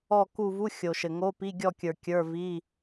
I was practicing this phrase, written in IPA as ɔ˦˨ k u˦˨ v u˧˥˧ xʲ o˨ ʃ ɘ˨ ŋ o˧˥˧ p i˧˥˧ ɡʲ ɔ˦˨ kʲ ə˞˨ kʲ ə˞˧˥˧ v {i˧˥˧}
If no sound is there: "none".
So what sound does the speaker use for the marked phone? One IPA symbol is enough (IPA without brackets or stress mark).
i˧˥˧